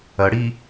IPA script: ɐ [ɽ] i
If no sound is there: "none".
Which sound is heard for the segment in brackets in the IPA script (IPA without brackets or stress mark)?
ɽ